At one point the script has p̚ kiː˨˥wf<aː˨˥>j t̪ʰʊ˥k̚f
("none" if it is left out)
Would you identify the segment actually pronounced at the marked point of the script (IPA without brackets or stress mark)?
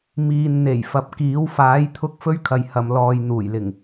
aː˨˥